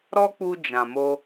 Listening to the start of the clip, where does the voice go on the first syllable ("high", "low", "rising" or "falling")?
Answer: high